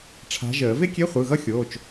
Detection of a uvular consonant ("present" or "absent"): present